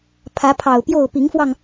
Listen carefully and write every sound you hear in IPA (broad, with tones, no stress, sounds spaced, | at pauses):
pʰ ä˨˦ pʰ ɑ˨˩ ʊ̯ p j o˥˨ ʊ̯ p i˨˦ ŋ f w ɑ˧ ŋ